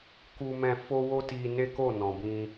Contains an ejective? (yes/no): no